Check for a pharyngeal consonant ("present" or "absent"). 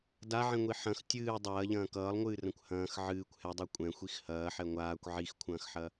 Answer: present